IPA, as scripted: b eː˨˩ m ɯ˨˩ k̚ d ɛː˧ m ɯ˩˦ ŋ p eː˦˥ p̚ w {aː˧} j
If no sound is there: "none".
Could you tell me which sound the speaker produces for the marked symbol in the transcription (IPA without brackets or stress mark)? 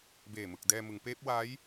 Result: aː˦˥